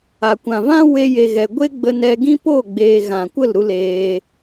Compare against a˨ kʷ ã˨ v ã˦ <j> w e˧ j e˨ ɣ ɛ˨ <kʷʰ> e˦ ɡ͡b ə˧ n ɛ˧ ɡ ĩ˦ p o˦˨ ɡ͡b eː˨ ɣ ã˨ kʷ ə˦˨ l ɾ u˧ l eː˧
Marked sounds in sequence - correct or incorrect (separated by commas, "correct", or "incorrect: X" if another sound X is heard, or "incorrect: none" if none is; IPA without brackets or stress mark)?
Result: incorrect: none, incorrect: ɡʷ